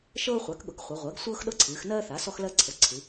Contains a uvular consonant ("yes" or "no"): yes